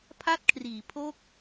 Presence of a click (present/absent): absent